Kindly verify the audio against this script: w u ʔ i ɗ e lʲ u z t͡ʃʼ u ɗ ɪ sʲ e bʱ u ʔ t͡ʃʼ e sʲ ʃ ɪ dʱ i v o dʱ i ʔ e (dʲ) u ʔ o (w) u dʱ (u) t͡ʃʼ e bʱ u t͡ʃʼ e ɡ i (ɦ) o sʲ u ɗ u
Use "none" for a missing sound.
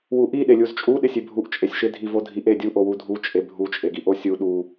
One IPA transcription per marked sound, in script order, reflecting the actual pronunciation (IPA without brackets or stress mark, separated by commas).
dʲ, w, u, ʔ